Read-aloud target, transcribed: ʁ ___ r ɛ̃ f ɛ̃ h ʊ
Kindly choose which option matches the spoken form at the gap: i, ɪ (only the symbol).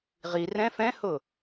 i